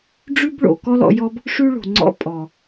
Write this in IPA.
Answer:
ɖ͡ʐʉ˦bɭo̰˨ kɔ˦lɔ̰˧jɔ˦b | ʂʉ˦ ɭo̤˨ŋ͡ǀɔ̰˦ pʼɔ˨

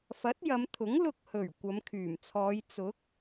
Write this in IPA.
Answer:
fɐ˨˥t̚jɐ˨˧mt̪ʰʊ˨˥ŋ lʊ˧k̚hɵ˨˩ɥ kʷɐ˨˧mkʰyː˨˩mt͡sʰɔː˨˧j t͡sʊ˨˥k̚

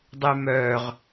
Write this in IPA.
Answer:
dˤymœːʁ

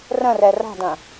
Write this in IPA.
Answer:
rə̃rɛ ra̤dɐ̃

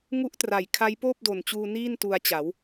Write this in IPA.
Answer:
ŋu˦˥ʔtra˨˩jkʰa˦˥j poː˥˩p̚do˨˩nt͡ɕuː˧ niː˥˩n tu˧a̯t͡ɕa˩˦w

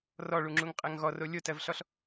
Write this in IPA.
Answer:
rɔɭuŋ͡ǁuŋqʼɜŋ ɣɔro lʲotɜvɬɔɬ

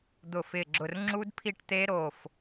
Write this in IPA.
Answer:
d̪ʊ˧˩fɪ˧˩ɡ͡ǁʊ˧˩r ŋ͡ǁu˦˥dpʰi˥˩ʈt̪e˦˥ ɾo˧˩f

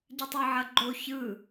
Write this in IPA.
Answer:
ɟɯtˤɯʕɐɡ͡ǃo çɯ

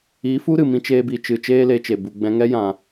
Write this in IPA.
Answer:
i˨˦fu˦ɾɨ˨ mĩ˧t͡ʃeː˧bi˨t͡ʃɨ˨ t͡ʃeː˦le˧t͡ʃe˨ bu˨ɡ͡bɛ̃˧ŋɛ˦ jã˨

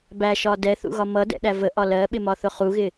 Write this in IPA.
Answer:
bæʃɒ dɛθṵɣɒ mʌdɛ̰ɗæ vəʔɒ lɜɓɪmɒθʊ χuɣɪ

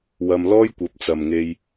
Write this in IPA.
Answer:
wɐ˧mlɔː˥j kʷɐ˨˥p̚t͡sɐ˨mŋe˧j

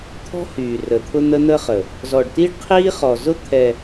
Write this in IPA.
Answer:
t̪ʰɔ̤˦hyː˨ rə˨t̪ʰʊ˦ n̪ə˦n̪ə˦χə˨ | zɔ˨ɖti˦ɖqʰiː˦ χɔ˨zʊ˦ t̪ʰɛ˨

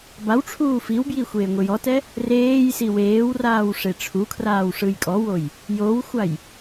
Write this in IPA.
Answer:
bawʈ͡ʂʰuː fiwbji xʷeːŋʷijɔtɛ | reːjsi weːwraːw ʂeʈ͡ʂʰukʰraːw ʂɯjkʼɔwoj | jowxʷaj

